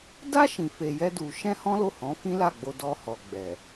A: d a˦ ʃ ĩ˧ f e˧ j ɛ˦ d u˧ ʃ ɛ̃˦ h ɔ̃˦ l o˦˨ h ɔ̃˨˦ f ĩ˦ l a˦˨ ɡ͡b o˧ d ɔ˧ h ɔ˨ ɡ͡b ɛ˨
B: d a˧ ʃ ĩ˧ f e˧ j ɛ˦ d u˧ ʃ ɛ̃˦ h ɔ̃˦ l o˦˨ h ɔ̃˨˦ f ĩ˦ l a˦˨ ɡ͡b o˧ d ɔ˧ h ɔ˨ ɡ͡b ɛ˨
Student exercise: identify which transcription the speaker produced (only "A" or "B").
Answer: A